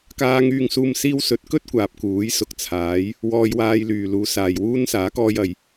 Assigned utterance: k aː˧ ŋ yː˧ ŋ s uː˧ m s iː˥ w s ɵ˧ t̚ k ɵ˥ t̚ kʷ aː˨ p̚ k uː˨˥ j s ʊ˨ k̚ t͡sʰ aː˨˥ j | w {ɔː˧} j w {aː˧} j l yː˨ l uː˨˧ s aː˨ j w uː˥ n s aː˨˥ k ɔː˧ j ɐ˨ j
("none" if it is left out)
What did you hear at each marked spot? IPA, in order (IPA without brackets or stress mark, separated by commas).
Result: ɔː˧, aː˧